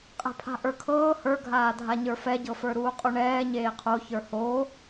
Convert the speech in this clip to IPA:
qʼɛ̤pʰa̤ʔə˞kʰɤː hə˞ɡʱaː dʱaɲə˞fɛɟɤ fə˞ɾuːqʼoɳɛː ɲeːqʰoçə˞ ho

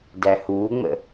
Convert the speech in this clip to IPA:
dæhuːŋ͡mə̰

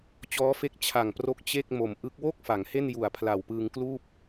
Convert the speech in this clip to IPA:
t͡ɕɔː˦˥fe˦˥k̚ t͡ɕʰa˨˩ŋpro˦˥k̚ t͡ɕe˥˩k̚ mo˨˩mʔɯ˦˥k̚ wo˥˩k̚ fa˩˦ŋhe˥˩n ju˨˩a̯pʰla˨˩wpɯː˧ŋkluː˥˩p̚

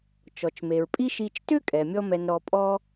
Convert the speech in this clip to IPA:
t͡ʃɔ˩t͡ʃme˩ɹpʼi˥ʃi˧t͡ʃ tʏ˥kʼɛ˩ mʲɔ˥mɛ˧n ɾɔ˧pʼɔ˥

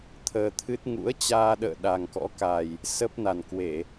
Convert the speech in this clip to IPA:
t̪ʰəː˧t̪ʰɨ˦˥t̚ ŋṵ˧˥ə̯t͡ɕaː˧ɗə̰ː˧˨ ɗa˨˩ŋkɔ̰˧˥ka˨˩j | sə˦˥p̚ na˨˩nkwe˧˩˨

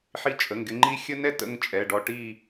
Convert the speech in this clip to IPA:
ħi˧t͡ʃʼə˩˧˩ŋɡɪ˧ŋ͡ǃi˦˥ xʲə˦˥nɛ˧tə̰˧ŋ t͡ʃʼɛ˩˧˩ɖɔ˧ ʈi˥˧

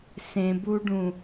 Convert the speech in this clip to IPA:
sẽbuɖũ

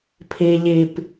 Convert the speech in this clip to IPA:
pʰi ʎip

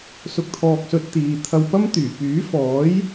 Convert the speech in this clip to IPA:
sʊ˨k̚t̪ʰɔː˨k̚sɵ˨t̚ t̪iː˨ t̪ʰɐ˧wpɐ˥mt̪yː˨˩ pyː˨˥ fɔː˨˥j

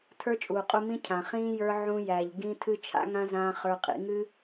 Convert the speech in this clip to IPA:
tʰə˞˦t͡ʃʼuː˨qʼu˧mĩ˦ cʰã˨χĩː˦ jə˞˧ ʕũ˧ jæ˨ʎ ɡĩ˦ tʰɨ˦t͡ʃʰa̰˦ŋã˦zãː˧ χə˞˧qʼḭ˧ ŋɨ˦

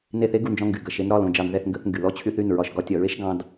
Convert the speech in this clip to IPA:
ne˧˩θe˧˥ɡu˩˧˩nd͡ʒɔ̃˧ ŋɡy˩ ɡɐ˩˧˩ʃe˧n ɾɒ˩˧˩lõ˩ d͡ʒɑ˧˩˧nðɛ˧˩θ ŋɡə˧˩˧θŋɡy˩ lɔ˧˥ t͡ɕʰy˧θy˩˧˩n ɹɒ˧˩˧ʃɡɒ˧˩˧tʲɒ˧˩˧ ɹe˧˥ʃ ɡɑ̃˧d

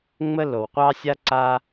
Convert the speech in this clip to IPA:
ŋ͡mə˦˨l o˨wqʷɑ˦sʲa˦ǀa˦

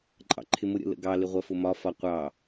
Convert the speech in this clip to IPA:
ǃʼɑ̰ǃʰɪmʊ ɾʲə̰lə̰ɡɑ lɪʁʷɜfʊmɒ fɒqʷɑ

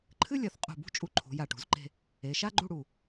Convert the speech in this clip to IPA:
ǃʰɨ˥lʲɐ˩˧θqʼṳ˧˩bṳ˥ t͡ʃʼu˧ ǃʰṳ˩˧ja˧˩ʈṳ˩˧zǃe̤˥˧ | e˩˧ ʃa˥ɡ͡ǃu˥˧ɽu˧˩

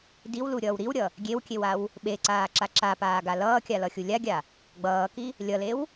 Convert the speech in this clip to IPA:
diwluɾʲʌːw ɾiwɾʲʌ | ɡʲewkʲewaw | ɓeǀaːǁa ǁapaːɡa lʌːkʲalʌxʲu lʲaɡʲa | ɡ͡bʌːki | lʲʌlew

